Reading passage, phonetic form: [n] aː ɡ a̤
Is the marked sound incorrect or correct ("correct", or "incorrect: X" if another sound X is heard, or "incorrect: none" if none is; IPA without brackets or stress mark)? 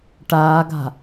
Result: incorrect: ʈ